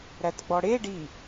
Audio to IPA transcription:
ɾætɡ͡bɔɽe ɖi

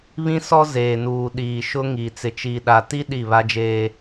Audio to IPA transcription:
βĩ˦sɔ˦ zeː˨nuː˨ ɗiː˨ʃʊ˦ŋi˨ t͡sɪ˨t͡ʃiː˨ɗa˨ti˦ ɗi˦˨βa˦d͡ʒeː˦

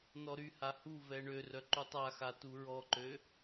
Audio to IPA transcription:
nɔɾyha huvɛ ɳørœ ǃutˤaxa tuɹɔǃø

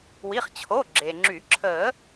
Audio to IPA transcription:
wi˩˧˩χt͡ɕʰo˩˧˩ ɡ͡ǁe˩ŋ͡ǁy˨˩˦ ǁʰə˨˩˦

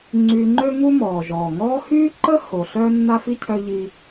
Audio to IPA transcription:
ŋ͡ǀyː˨ŋ͡ǃø˦ŋu˦ mɔː˩ʒɔː˩ ŋɔː˦hyː˥ ǃə˥ ho˩ ɬœː˥nːa˥fi˥cʰœ˦ ʎi˦

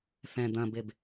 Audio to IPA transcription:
θɛ̃ d̪ɐ̃beb

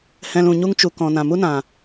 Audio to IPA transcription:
hɛ̃˧l ũ˨ɲu˧ŋt͡ʃu˨ kɔ̃˨ nã˨mu˦nã˨

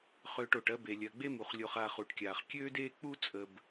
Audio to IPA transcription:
χøː˨ʈ o˩ʈɜ˦ be˩lʲɜ˩ɡ͡be˦mu˩χ lʲo˨χ a˨χu˩ʈkʲaː˩χ kʲøː˥deː˥ k͡pu˥t͡sʼə˨b

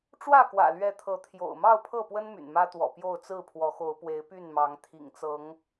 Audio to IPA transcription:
ʈ͡ʂwä˥˨kwä̰˨˩lɥɛ˨˦t̪ʰɤ˨˦ t̪ʰjo̰˨˩ʊ̯mɑ˥˨ʊ̯pʰɤ˥˨pwə˦n my̰˨˩nmä˦t̪wɔ̰˨˩pjo˥˨ʊ̯ t͡sɹ̩˥˨pʰwɔ˨˦xo˨˦ʊ̯ pwe˨˦ɪ̯py˥˨nmɑ˨˦ŋ t̪ʰḭ˨˩ŋt͡sɤ˨˦ŋ

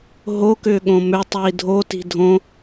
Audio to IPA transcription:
ɦo kʏːɠõmʏ tˤiːdʱo ti̤dʱõ

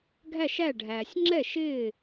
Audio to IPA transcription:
ɡʱæ˥˨ʃæ˥˨ɖʱæː˨sʲ ŋ͡ǁɛ˥˨ʃɪː˥˨

